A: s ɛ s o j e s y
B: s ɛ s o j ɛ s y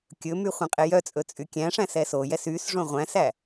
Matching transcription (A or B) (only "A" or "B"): B